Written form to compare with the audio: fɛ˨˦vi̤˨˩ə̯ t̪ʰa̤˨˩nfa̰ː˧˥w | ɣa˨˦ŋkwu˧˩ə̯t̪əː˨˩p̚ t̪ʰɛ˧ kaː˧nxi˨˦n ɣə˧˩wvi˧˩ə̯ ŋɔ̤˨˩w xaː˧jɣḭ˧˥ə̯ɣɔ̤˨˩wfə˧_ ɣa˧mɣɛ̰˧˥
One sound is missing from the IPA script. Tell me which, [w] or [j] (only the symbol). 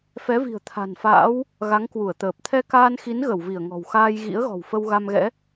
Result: w